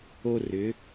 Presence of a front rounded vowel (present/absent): present